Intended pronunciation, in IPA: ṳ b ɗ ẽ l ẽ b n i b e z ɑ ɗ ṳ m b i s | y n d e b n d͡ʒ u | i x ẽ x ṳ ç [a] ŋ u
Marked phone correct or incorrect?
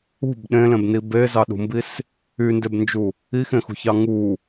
incorrect